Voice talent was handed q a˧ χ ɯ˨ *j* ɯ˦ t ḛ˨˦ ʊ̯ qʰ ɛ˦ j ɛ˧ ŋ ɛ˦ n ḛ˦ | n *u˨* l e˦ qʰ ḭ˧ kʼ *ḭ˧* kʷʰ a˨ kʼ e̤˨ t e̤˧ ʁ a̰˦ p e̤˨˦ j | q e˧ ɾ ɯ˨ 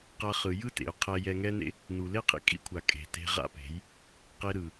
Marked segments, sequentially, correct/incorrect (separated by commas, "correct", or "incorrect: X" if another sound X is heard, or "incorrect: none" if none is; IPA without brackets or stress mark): correct, correct, correct